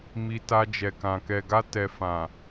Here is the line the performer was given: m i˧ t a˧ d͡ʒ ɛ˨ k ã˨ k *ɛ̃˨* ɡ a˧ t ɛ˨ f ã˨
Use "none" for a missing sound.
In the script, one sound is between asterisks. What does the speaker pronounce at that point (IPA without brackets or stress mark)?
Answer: ɛ˨